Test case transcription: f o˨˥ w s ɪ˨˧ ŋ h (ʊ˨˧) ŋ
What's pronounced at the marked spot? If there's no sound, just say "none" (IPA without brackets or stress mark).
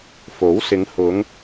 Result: ʊ˨˧